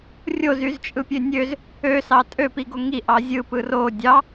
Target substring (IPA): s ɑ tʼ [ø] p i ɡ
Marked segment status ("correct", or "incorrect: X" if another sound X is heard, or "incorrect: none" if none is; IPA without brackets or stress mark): correct